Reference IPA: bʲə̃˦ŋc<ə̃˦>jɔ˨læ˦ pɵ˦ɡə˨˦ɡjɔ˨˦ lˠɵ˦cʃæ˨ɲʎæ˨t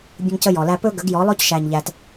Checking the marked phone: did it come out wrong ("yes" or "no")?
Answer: yes